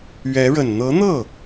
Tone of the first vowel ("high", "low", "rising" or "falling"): rising